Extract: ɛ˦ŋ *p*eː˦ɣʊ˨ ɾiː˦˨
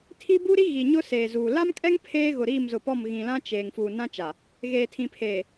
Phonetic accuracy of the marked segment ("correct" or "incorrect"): incorrect